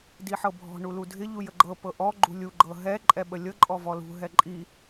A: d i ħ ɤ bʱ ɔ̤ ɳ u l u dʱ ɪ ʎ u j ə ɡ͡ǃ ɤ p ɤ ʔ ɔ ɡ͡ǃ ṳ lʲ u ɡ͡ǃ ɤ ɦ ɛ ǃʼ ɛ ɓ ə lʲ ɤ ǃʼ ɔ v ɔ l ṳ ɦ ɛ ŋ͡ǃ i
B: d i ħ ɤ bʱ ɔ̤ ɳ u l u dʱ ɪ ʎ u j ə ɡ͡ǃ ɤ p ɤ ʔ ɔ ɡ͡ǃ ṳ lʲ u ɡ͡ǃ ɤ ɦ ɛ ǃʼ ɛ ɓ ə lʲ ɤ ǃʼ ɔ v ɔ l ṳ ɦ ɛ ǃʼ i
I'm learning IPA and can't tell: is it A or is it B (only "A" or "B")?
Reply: B